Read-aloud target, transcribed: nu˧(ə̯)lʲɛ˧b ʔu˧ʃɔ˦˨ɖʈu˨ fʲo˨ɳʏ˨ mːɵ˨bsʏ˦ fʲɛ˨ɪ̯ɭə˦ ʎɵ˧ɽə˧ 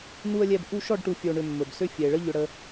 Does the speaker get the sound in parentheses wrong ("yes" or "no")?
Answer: no